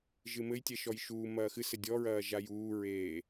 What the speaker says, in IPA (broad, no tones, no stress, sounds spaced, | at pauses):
ʒ ɨ m ɘ j tʲ ɛ ʃ ɔ j ʃ uː m ɐː x ɨ s ɘ dʲ ɔ ɹ ɐː ʒ a j uː ɹ eː